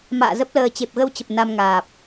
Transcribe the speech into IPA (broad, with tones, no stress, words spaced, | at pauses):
ma̰ː˧˨zə˦˥p̚ləː˧ t͡ɕe˨˩p̚ɣə˧wt͡ɕə˨˩p̚ na˧mŋaː˨˩p̚